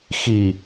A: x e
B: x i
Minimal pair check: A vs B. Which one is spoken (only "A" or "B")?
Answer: B